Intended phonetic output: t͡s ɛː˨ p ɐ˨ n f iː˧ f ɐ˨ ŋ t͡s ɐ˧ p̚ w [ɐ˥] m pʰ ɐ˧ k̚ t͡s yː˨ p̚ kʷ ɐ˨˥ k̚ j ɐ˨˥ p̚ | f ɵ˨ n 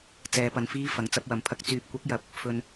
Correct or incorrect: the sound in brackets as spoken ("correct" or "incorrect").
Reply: incorrect